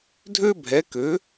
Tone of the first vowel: high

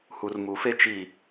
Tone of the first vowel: low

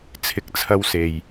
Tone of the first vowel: low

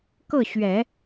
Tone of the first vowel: falling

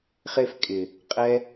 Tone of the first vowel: high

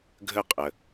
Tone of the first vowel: falling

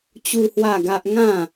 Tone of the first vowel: high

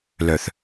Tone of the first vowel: low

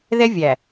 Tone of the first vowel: high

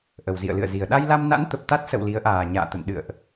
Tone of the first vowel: low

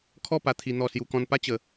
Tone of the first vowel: falling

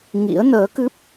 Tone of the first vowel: rising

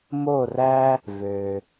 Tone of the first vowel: falling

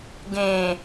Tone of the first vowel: low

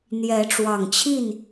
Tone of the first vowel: rising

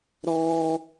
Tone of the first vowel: high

